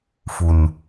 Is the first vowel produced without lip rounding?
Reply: no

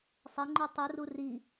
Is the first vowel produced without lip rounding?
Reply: yes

